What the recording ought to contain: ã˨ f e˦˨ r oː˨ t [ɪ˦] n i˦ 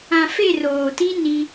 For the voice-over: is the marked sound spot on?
no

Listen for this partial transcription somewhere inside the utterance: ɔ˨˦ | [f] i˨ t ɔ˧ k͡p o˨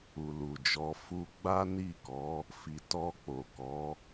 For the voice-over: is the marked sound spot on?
yes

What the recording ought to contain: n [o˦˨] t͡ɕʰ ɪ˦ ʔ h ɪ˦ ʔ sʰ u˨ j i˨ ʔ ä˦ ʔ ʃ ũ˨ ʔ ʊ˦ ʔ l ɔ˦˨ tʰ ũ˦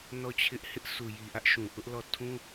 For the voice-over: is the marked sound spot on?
no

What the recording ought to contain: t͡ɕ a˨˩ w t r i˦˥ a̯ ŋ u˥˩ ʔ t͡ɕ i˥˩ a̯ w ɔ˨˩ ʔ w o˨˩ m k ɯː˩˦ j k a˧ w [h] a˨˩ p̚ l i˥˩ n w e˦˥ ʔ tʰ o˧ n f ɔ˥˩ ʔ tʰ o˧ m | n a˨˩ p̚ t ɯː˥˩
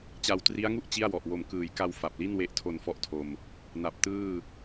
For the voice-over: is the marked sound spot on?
no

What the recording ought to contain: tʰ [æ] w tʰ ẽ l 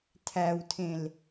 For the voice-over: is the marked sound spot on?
yes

